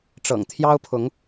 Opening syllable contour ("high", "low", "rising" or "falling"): low